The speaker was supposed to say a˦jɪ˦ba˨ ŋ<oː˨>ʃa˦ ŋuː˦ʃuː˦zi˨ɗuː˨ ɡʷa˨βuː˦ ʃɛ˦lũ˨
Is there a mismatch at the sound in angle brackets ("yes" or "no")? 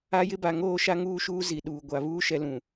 yes